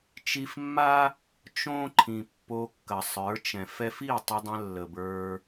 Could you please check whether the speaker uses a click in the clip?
yes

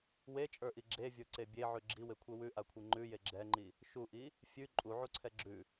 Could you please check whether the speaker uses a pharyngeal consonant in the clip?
yes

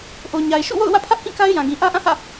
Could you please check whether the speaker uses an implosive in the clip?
no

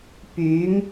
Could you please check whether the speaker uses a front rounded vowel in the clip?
yes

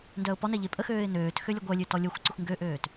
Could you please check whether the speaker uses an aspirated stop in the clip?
no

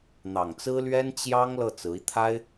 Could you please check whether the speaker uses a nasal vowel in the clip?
no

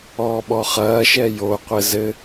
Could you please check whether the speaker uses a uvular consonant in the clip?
yes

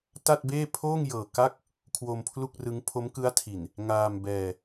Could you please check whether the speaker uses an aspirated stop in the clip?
yes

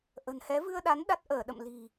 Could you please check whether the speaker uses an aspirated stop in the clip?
no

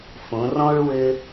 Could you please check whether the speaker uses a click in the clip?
no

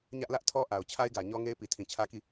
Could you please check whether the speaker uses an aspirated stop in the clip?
yes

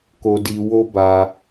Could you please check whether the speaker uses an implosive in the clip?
no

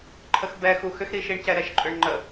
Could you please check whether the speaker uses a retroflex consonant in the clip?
yes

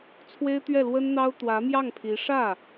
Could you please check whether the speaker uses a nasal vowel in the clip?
no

